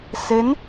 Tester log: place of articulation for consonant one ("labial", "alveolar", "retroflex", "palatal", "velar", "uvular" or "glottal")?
alveolar